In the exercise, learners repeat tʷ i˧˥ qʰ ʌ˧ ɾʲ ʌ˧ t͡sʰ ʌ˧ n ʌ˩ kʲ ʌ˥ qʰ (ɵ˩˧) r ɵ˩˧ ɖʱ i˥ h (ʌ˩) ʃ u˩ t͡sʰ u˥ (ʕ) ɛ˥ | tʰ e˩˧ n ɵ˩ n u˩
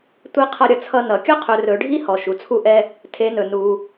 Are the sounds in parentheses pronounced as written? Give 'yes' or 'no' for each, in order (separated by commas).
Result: yes, no, no